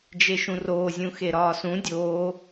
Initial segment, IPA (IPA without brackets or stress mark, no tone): d͡ʒ